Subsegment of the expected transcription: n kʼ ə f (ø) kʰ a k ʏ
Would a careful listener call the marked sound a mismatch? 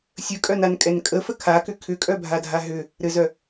yes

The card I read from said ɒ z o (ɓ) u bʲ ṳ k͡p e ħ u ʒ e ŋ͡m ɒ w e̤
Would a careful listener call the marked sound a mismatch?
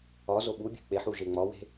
no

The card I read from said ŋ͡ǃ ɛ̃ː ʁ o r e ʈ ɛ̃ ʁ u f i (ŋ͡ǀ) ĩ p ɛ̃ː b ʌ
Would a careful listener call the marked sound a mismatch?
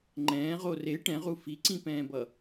yes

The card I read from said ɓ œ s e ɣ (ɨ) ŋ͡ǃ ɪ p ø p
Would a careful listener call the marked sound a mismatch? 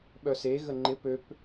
yes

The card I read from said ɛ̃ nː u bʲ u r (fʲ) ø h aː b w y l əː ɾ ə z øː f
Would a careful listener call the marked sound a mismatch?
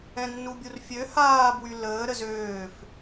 no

